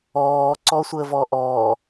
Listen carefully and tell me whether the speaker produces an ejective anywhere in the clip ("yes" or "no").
no